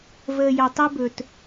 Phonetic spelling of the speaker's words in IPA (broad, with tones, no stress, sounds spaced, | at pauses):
v əː˨ j a˨ tˤ ɛ˦ b ɵ˨ t